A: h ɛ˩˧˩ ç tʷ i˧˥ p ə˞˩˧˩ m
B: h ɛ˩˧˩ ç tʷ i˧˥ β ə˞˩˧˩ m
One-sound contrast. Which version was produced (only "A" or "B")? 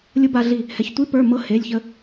A